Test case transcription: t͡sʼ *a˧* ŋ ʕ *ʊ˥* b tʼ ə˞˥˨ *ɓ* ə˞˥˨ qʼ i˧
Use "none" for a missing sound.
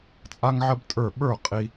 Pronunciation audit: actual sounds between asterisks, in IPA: a˥, ə˥, ɓ

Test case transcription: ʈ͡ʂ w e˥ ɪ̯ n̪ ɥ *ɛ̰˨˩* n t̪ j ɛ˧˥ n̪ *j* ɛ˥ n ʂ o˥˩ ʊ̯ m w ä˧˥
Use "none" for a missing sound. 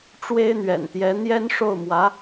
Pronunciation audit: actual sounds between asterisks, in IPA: ɛ̰˨˩, j

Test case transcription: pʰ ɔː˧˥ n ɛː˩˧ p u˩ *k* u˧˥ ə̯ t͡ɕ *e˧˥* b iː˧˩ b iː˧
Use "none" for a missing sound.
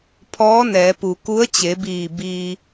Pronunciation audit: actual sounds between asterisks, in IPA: k, e˩˧

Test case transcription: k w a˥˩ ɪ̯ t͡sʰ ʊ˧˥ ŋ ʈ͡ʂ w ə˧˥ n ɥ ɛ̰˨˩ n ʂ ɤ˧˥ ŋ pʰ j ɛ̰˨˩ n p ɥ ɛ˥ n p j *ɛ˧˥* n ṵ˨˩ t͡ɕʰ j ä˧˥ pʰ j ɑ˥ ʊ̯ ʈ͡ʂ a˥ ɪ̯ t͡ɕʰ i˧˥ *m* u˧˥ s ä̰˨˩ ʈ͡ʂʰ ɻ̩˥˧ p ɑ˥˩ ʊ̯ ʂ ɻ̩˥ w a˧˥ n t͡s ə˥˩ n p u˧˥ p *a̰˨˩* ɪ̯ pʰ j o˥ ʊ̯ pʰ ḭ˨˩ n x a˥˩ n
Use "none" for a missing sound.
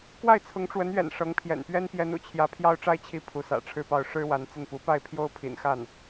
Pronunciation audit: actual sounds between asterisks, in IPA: ɛ˧˥, pʰ, a˥˩

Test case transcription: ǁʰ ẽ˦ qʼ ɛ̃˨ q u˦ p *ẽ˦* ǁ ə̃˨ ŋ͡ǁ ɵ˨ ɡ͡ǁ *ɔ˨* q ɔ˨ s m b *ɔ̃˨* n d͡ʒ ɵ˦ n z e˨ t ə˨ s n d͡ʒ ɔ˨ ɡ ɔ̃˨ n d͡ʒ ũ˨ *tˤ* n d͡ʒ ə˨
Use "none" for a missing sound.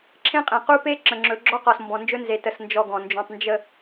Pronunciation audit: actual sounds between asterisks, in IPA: e˦, ɔ˦, ɔ̃˨, tˤ

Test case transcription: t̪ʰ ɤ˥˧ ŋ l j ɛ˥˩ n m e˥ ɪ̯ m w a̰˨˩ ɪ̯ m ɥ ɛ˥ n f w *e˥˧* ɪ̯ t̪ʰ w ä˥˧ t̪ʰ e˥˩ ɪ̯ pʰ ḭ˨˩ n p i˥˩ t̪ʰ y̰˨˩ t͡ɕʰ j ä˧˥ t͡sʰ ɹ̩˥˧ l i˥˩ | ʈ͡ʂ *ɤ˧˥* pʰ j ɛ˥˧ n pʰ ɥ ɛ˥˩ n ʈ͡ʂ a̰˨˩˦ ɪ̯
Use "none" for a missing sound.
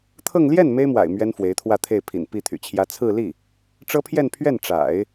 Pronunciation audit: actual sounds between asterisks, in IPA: e˧˥, ɤ˥

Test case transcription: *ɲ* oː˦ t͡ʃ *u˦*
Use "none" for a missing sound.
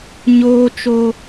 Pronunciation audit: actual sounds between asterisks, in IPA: ɲ, o˦

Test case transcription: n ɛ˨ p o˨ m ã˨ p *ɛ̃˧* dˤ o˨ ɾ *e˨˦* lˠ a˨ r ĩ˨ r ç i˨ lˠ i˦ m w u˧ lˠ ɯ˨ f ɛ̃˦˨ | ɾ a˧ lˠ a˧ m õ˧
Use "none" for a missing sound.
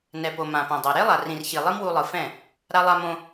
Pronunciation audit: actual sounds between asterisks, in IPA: ɛ̃˨, e˦

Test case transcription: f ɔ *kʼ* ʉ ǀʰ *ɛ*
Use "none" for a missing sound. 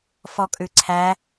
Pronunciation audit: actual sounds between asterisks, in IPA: kʼ, æ

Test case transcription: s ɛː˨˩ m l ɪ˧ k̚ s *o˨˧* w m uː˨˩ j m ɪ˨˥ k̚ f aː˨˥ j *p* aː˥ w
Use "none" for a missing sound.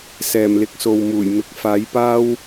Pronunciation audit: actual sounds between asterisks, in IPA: o˨, p

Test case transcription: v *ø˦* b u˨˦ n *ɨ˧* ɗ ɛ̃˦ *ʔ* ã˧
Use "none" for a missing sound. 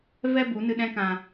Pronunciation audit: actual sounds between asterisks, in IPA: ɛ˦, ɨ˧, k

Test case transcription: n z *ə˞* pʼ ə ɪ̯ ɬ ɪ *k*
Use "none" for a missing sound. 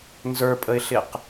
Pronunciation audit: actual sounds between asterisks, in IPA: ə˞, q

